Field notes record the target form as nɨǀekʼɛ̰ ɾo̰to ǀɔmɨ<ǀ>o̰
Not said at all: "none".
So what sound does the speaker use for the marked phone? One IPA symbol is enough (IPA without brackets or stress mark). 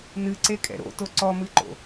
ǃ